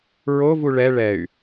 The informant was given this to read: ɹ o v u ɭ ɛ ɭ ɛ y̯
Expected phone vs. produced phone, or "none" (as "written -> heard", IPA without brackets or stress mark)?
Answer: none